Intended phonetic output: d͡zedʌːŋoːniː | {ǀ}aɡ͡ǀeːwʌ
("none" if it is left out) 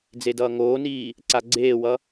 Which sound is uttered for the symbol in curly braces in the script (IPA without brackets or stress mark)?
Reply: ǀ